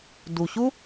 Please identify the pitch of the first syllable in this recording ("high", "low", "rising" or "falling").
low